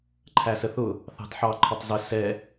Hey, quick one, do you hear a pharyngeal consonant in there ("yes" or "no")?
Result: yes